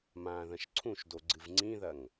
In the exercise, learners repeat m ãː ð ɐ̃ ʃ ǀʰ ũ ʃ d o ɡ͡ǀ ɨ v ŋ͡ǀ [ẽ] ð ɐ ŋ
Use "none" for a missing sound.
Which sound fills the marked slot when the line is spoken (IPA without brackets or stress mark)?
ĩ